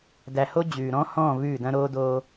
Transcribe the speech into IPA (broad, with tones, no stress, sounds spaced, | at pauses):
d æ˨ h o˦ d͡ʑ ʉː˨ ɾ ɔ̃˦ h ɔ̃ː˦˨ v ʉː˦˨ d ɐ̃˦ ɾ oː˦ d oː˦